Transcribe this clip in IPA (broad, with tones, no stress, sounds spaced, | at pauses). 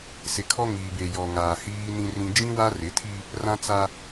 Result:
s ɪ˨ kʰ ɔ˦ ŋ iː˨ b e˨ j ɔ˨ ŋ aː˨ h iː˦ n ĩ˦ r ĩ˦ d͡ʒ ĩ˦ w a˦ r ɪ˨˦ tʰ i˦ | r ã˦ t͡s a˦